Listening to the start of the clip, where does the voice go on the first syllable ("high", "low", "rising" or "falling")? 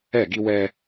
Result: falling